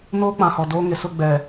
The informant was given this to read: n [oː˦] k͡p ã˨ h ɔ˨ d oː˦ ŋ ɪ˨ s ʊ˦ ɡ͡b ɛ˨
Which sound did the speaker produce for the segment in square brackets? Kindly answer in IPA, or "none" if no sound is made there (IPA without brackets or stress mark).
oː˦